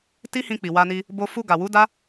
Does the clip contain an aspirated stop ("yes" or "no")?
no